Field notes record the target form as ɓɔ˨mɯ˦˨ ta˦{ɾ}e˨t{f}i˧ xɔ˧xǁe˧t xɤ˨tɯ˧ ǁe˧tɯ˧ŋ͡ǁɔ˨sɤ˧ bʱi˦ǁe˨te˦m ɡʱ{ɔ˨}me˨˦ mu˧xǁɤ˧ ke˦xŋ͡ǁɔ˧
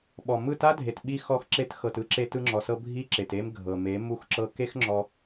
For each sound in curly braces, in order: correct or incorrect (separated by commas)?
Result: incorrect, incorrect, incorrect